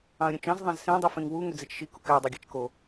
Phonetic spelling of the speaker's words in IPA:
ɑ̃ ə̯ ɾʲ ũ t͡ʃ ɑ̃ z ðˤ ɑ̃ z s ẽ dˤ u f ẽ ŋ w u ŋ ø d͡z e t͡ʃ ʃ i k u k æ dˤ i ɡʲ æ t͡ʃ k o

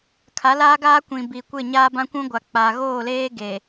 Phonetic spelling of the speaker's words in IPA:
kʰ a˨˦ l a˦ ɡ aː˦ kʷ ĩ˨ b i˨ kʷ ɪ˦˨ ɲ aː˦ b ã˦ kʷ ũ˦ ɡʷ a˨ k͡p a˨ ɣ oː˦˨ l eː˦ ɡ e˨

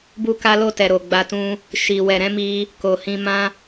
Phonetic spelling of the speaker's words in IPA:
b u˧ k a˧ l o˧ t ɛ˨ ɾ o˨ ɡ͡b a˧ t ũ˧ | ʃ i˨ w ɛ˨ ɾ ɛ̃˨˦ m i˧ | k o˨ h ĩ˧ m ã˦

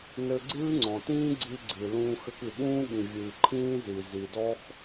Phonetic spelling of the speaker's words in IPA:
n ɘ˧ ɡ͡ǀ ɨː˥ ŋ͡ǀ ɔ̃˩ t ĩː˥ ɡ͡ǀ i˧ ɡ͡ǀ ɨ˩ l ũː˧ x ɘ˧ k ɨ˩ ɠ ũː˥ ɠ ĩ˩ vʲ ɨː˩ ǃʰ ĩː˥ z i˩ z i˩ d ɔ˥ x

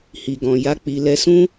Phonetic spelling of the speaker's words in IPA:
h i˨ ɡ ɔ̃˨ j a˨˦ k͡p i˧ l ɛ˧ s ũ˦

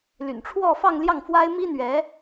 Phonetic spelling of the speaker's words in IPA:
l y̰˨˩ n ʈ͡ʂʰ w ɔ˥˧ f ɑ˥˧ ŋ l j ɑ˥˩ ŋ f w a˥ ɪ̯ m i˥ n̪ ɥ ɛ˧˥

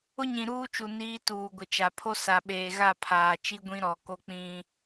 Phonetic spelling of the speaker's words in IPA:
ʊ˦ ɲ ĩ˨ ɾ uː˦ t͡ʃ u˨ n iː˦ t uː˨ ɡʷ ɪ˨ t͡ʃ a˨ pʰ o˦ s a˨ ɓ eː˨ ɣ a˦˨ pʰ aː˨ t͡ʃ i˦ ɡʷ ĩ˦ ɾ ɔ˨ k o˦ k͡p ĩ˦

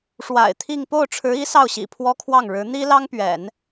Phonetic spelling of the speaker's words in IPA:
ʂ w a̰˨˩ ɪ̯ t̪ʰ i˥˧ ŋ p o˥˩ ʊ̯ ʈ͡ʂʰ ɻ̩˧˥ i˧˥ s ɑ˥˩ ʊ̯ ɕ ḭ˨˩ pʰ w ɔ˥ kʰ w ɑ˥˩ ŋ ɻ ɻ̩˧˥ n̪ i˥ l ɑ˥ ŋ p ɥ ɛ̰˨˩˦ n

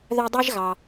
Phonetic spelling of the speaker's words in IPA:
ð œ˦ dˤ i˥ ʒ ɣ ɑ˩

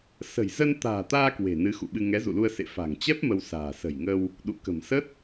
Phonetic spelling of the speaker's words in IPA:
s ə̤˨˩ j z ə˧ n t̪ a̤ː˨˩ t̪ aː˧ k w e̤˨˩ n ɨ˨˦ x ṵ˧˨ ɓ ɨ˧ ŋ ɛ˨˦ z ṵ˧˨ l u˧ ə̯ s ḛ˧˨ f a̤˨˩ ŋ t͡ɕ ɛ˦˥ p̚ m ə˧ w s a̤ː˨˩ s ə̤˨˩ j ŋ ə˧ w | ɗ ṵ˧˨ k ə̤˨˩ m s ə˦˥ t̚

